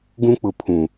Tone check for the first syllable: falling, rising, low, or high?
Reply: high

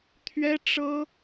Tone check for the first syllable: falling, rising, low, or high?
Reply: high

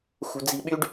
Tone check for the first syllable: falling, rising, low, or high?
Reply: low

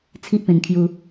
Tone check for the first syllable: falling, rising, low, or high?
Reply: high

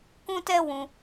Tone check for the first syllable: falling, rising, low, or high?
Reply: high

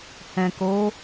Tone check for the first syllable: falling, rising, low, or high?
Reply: low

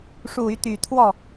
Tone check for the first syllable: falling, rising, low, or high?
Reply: low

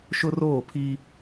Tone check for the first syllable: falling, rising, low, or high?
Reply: high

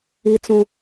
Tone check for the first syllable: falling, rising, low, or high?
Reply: high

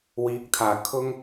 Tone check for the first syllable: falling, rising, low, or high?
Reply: rising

